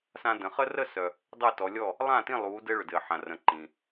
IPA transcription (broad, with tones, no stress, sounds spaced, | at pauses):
s ã˦ d ə̃˨˦ χ ə˦ r ə˥˨ s œ˨ | dˤ ɘ˥˨ t ɔ˨˦ lʲ ɔ˥˨ | lˠ ã˥˨ t ĩ˥˨ lˠ u˨˦ d ɘ˦ ɭ ʏ˨ d ɘ˨ ħ ã˨ r ə̃˨˦ ǃ ĩ˨